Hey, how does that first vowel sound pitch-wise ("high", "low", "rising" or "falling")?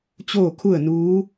falling